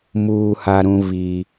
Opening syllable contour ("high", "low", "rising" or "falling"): high